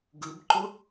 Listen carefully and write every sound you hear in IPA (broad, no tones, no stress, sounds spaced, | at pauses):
ɡ ɯ b ǃ ʊ